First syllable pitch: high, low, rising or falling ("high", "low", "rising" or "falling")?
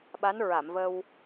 rising